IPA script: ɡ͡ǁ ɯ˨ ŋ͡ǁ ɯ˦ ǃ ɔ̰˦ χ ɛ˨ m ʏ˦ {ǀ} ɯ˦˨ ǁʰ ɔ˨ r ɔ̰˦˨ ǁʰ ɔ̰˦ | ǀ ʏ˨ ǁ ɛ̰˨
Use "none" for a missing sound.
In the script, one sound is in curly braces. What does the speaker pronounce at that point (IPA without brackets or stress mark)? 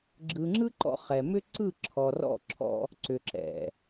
ǀ